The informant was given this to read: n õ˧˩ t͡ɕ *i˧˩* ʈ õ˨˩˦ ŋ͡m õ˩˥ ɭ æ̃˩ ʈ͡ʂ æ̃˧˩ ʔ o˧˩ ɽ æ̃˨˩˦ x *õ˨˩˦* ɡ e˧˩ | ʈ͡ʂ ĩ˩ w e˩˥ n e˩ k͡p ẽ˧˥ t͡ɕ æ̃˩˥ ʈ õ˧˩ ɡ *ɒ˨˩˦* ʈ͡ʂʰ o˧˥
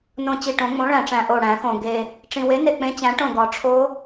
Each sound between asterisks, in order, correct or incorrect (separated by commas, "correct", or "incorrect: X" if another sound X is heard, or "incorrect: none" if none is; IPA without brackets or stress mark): correct, incorrect: õ˩, correct